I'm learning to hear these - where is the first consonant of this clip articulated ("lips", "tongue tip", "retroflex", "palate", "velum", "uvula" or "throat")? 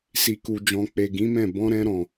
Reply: tongue tip